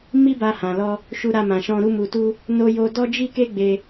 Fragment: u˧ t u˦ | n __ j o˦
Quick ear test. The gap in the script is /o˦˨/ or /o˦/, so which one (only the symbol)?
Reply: o˦